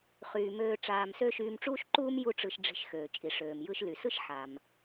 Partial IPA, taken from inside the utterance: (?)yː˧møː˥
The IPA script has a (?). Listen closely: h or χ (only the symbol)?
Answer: χ